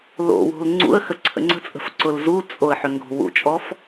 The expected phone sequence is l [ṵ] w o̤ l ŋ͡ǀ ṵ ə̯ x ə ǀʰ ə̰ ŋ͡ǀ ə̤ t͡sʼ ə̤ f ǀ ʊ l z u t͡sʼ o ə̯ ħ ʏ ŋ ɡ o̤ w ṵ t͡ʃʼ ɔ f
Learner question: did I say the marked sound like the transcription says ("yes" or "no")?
no